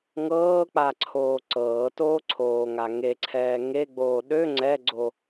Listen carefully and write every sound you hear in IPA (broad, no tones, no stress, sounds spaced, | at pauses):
ŋ ɤː k͡p a ǀʰ oː ǀ ɤː t oː ǀʰ oː ŋ a ŋ e ǀʰ ɛː ŋ e ɡ͡b oː ɗ ø ŋ͡ǀ ɛ ɡ͡ǀ o